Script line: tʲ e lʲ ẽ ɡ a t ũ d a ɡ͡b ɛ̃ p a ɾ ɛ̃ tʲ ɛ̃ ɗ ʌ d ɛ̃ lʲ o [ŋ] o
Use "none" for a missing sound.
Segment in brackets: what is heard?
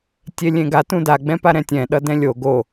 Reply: ɡ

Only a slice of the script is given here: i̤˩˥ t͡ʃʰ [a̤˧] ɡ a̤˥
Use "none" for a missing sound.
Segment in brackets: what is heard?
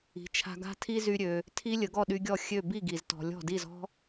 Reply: a̤˧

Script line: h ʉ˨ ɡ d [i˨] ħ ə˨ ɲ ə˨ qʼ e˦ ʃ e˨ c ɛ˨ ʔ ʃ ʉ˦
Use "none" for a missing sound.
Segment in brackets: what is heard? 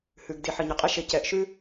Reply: i˨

